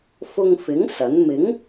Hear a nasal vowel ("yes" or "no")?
no